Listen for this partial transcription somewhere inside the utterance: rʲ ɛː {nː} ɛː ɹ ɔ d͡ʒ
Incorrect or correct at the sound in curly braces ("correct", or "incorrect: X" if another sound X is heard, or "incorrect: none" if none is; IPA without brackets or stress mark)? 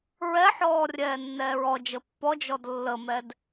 correct